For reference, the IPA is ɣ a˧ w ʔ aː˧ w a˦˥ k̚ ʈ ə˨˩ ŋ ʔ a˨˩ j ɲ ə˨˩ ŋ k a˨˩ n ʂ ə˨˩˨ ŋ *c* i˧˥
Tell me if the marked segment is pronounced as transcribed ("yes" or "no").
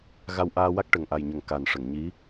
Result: no